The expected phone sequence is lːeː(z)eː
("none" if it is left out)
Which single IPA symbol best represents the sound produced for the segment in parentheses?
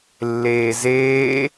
z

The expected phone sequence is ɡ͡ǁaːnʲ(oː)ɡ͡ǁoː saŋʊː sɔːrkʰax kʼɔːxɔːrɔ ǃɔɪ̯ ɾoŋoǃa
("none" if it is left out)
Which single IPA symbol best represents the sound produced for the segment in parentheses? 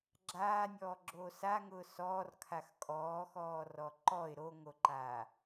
ɔː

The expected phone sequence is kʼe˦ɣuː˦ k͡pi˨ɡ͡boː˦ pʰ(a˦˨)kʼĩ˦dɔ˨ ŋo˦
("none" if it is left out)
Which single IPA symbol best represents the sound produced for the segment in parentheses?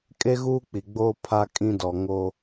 a˦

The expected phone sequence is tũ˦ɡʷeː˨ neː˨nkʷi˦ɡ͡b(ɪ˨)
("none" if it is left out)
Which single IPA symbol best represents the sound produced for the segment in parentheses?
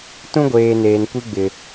ɪ˨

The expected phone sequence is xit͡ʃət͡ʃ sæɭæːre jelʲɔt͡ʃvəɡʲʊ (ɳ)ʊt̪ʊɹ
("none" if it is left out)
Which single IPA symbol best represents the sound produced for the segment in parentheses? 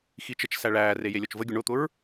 ɳ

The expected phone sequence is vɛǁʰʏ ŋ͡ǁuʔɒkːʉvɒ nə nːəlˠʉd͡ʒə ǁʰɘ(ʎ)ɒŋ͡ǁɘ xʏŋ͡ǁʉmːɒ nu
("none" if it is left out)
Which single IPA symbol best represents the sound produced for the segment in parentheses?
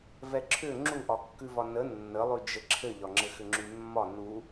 ʎ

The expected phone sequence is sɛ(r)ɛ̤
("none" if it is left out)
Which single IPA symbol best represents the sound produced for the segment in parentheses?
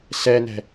n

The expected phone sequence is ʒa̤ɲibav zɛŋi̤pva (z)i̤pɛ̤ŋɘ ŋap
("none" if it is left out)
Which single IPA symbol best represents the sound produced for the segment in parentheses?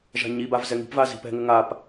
z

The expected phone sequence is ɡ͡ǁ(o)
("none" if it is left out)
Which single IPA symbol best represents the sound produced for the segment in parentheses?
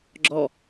ɔ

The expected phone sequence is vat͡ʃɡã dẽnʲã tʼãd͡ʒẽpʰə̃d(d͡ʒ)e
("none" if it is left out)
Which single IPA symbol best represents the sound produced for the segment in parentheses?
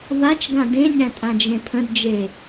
d͡ʒ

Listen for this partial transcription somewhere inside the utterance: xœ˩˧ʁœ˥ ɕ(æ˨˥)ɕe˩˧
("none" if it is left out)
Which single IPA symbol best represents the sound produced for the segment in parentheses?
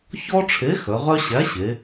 æ˨˥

